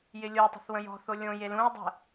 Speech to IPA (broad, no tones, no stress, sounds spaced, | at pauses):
j ɪ lʲ o tˤ ə̤ θ w ə̃ j ɔ̤ θ o lʲ õ j e l ũ ɐ̯ dˤ ə̤